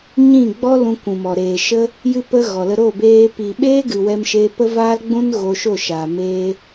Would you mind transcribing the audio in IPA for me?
ɲĩ˦˨ɡ͡bɔ˦ lũ˧kʷũ˨mɔ˨ ɾeː˨ʃə˧ | jɨ˦pə˦ɣɔ˨lə˧ ɾo˦˨beː˧ pi˨ ɓeː˦ɡɨ˨ wɛ˧mʃeː˧pə˦ vaː˦lɡ͡bũ˦n ɣo˧ʃo˦˨ʃaː˨ meː˧

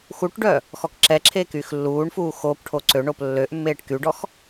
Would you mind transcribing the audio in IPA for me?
xuʈɖœ | xɔkǁɛǁʰeː kyːxlːuːɳfuː xop ʈʰoǀøɳop lːøʔmːeːʈ kyɖɔx

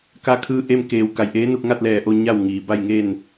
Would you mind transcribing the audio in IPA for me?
ka˧kʰɯː˧ʔe˧m keː˩w ka˩˧jʔeː˧˥ nu˧k̚ŋa˥˨t̚lɛː˧˩ʔo˥˨ ɲa˥˨wŋiː˩ ba˥˨jŋe˥˨n

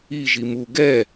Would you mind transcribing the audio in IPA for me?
i ʒimu ɡɛ

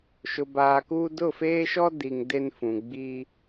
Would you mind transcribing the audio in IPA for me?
ʃʊ˨baː˨kuː˦ dʊ˦˨feː˦ʃɔ˦ di˨ŋ de˦nfũ˨ ɡ͡bi˦

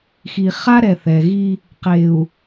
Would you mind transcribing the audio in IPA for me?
xi˨χa˦ɾɛ˨ θɛ˨ɣi˦ | qe˨u̯

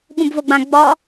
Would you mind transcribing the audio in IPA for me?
ɠũbvoɡ͡bã ɡ͡bɒ

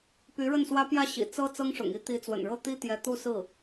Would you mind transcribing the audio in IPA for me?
py˧˥ɻə˥˩nswä˥ pjä˥˩ɕḭ˨˩ t͡sɤ˥ t͡sɤ˥ŋʂʊ̰˨˩ŋi˧˥ t̪i˧˥t͡swə̰˨˩nɻɤ˥˩ t̪i˥t̪jɛ˧˥ t̪u˥˧sɹ̩˥˩

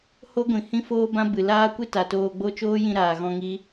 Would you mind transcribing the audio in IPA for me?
ho˦ɡʷĩ˨ hĩ˦foː˦bã˦ bɨ˨ laː˦kʷɨ˦ ta˨toː˧ɡ͡bo˦ t͡ʃoː˦jĩ˧ ɾaː˨ɣɔ̃˧ŋi˦

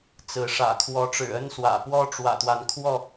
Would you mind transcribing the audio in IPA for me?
t͡sɹ̩˨˦ ʂä̰˨˩kʰwɔ˨˦ ʈ͡ʂɻ̩˨˩ə˦nswä̰˨˩pwɔ˦ ʈ͡ʂwä̰˨˩t̪wa˨˦nkʰwɔ˥˨

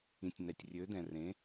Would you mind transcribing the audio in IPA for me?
ĩ˩tʲnɛ˩tʲ rʲø˩˥dɛ̃˩ rẽ˩˥

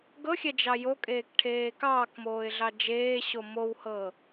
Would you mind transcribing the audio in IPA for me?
ɡɤxʲɛ d͡ʒɑjokʼeːk ʈʰeːkɑːkmoːɪ̯ ɮɑd͡ʒeːɕo mowhɤ

